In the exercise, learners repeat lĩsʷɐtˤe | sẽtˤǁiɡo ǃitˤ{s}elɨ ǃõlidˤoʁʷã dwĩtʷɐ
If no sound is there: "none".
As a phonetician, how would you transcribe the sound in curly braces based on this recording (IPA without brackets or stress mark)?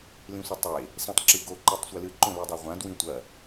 sʷ